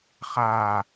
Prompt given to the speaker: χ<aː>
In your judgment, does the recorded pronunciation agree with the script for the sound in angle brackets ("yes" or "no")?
yes